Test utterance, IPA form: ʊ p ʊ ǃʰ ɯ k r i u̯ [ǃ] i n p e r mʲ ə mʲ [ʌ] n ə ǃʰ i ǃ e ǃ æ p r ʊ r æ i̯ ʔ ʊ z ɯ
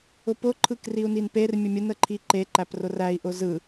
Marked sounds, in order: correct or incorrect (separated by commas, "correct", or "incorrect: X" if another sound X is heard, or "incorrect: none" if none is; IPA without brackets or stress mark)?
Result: incorrect: n, incorrect: ə